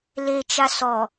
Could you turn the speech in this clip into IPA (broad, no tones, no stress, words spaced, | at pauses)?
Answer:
let͡ʃa sɔ